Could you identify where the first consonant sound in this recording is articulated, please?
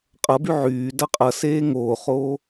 uvular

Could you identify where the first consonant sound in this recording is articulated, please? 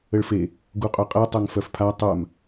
retroflex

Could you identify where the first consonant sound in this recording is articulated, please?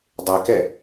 alveolar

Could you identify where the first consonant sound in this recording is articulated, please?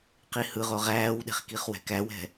uvular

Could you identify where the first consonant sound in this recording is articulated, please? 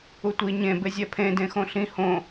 alveolar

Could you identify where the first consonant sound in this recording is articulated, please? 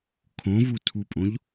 velar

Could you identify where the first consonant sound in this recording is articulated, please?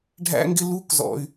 retroflex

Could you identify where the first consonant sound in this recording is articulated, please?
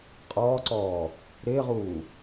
uvular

